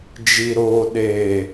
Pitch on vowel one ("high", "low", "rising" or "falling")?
low